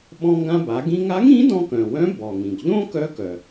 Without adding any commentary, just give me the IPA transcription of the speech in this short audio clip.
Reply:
ɓ ɔ̃˧ ŋ ɡ ã˧ b a˩˧ ɡ ĩ˧ ŋ a˧˥ ŋ ĩ˧˥ d ɔ̃˧ k œ̃˩ w œ̃˧˥ b ɔ˩ ŋ ĩ˩ ɡ ʎ õ˥ k œ˧˥ k œ˩

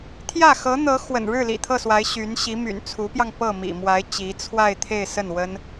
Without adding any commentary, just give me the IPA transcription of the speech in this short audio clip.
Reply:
t̪ʰ j ä˥˩ x ɤ˧˥ n̪ ɤ˧˥ x w ə̰˨˩ n ɻ ɻ̩˥˩ l ḭ˨˩ t̪ʰ ɤ˥˩ s w a˧˥ ɪ̯ ɕ y˧˥ n ɕ i˧˥ m y̰˨˩ n t͡sʰ u˧˥ p j ɑ˧ ŋ p ɤ˥˩ m ḭ˨˩ m w a˧˥ ɪ̯ t͡ɕ i˧˥ t͡sʰ w a˥˧ ɪ̯ t̪ʰ e˥˧ ɪ̯ s ə˥˩ n w ə˥ n

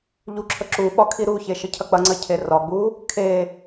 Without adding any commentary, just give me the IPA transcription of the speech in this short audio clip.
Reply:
ʎ u ǁʰ ə ǁ u ɓ ɒ kʰ i ɾ u ç e ʃ ə cʰ ɐ k͡p ɐ ŋ͡ǀ ɐ cʰ e r ɒ ɡ͡b u | kʰ e

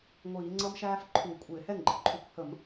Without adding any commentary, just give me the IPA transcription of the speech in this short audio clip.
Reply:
ŋʷ iː˧˩˧ ŋ͡ǀ ʌ˥ m ʃ æː˥ f ǃʰ u˧˩˧ kʷʼ ɪː˧˩˧ h ɛ˥˩ ŋ ɡ͡ǃ ə˩ ǃʼ u˥˩ kʷ h ə˧˩˧ m

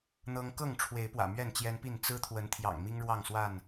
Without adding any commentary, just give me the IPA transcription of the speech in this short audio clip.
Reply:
n̪ ɤ˦ ŋ k ɤ˥˨ ŋ ʈ͡ʂʰ w e˨˦ ɪ̯ p w ä̰˨˩ m ɥ ɛ˥˨ n t͡ɕ j ɛ˦ n p i˥˨ n t͡s ɹ̩˦ t̪ʰ w ə˨˦ n t̪ʰ j ɑ̰˨˩ ŋ m i˦ ŋ ɻ w ɑ˥˨ ŋ s w a˥˨ n

